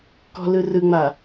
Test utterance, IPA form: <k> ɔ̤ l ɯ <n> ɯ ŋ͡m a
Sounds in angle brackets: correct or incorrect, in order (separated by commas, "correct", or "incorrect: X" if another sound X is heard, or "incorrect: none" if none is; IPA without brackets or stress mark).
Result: correct, incorrect: r